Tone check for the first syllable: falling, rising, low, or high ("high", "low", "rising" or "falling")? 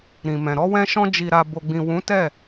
low